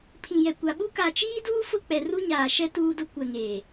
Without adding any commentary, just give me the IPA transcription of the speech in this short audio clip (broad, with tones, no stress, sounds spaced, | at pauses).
pʰ ĩ˨ j ɛ˨ kʷ a˨ ɓ u˦ k a˨ t͡ʃ iː˦ d uː˦ f ʊ˦˨ k͡p ɛ˨ r u˦ ɲ aː˨ ʃ ɛ˦ t uː˦ d ʊ˦ kʷ ɛ˨ ŋ eː˨